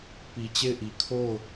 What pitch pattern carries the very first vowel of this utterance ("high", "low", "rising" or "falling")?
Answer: low